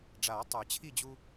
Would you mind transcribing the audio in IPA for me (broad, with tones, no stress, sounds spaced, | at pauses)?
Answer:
ɖ͡ʐ aː˨˩˦ tˤ ə˞˨˩˦ t͡ɕʰ i˥˨ d͡ʑ u˦